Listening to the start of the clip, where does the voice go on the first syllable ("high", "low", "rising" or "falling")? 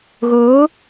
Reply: rising